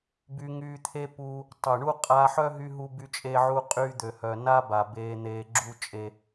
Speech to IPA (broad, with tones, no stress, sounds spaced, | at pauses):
b y˧ ŋ yː˧ t̪ʰ e˦ p uː˧ | tˤ œ˨ ɳ u˦ qʼ aː˧ ħ œ˦ ɦ y˧ ɦ u˧ b y˧ t͡ʃʼ e˧ ʕ u˧ qʼ yː˧ d̪ ø˨ h œ˨ n a˦ b a˨ b eː˧ n̪ eː˧ ɡ͡ǁ u˦ t͡ʃʼ e˧